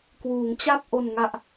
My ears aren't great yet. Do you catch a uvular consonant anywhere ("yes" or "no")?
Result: no